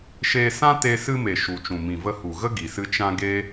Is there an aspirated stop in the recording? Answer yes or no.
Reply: no